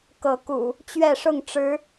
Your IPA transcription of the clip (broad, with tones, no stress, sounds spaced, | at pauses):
k ɤ˨˦ k ṵ˨˩ | t͡ɕ ɥ ɛ˥˨ ʂ ʊ˥˨ ŋ ʈ͡ʂ ɻ̩˨˦